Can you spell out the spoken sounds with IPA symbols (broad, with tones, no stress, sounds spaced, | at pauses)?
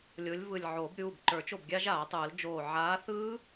lʲ o˨˥ lʲ v ɯ˧˩ lʲ ʕ oː˨˩˦ b ɾʲ uː˩˧˩ b ǃ ə˞˨˩˦ t͡ʃ o˥˩ b ɡʲ a˦˥ ʒ aː˨˩˦ tˤ ɯː˨˩˦ l d͡ʒ oː˧˩ ʕ aː˨˥ θ ɯː˦˥